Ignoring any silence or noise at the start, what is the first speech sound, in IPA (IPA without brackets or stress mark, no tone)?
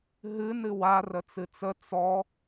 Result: ɦ